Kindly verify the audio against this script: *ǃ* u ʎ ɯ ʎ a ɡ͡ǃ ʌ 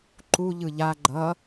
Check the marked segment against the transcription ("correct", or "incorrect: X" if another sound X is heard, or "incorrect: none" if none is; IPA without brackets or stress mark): correct